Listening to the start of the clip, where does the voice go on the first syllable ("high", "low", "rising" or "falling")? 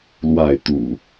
falling